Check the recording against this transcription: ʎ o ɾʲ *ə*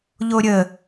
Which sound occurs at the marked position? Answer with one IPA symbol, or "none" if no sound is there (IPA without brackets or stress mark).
ə